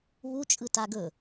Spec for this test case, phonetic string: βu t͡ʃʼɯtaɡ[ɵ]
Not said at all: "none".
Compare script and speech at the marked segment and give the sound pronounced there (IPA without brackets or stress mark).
ɵ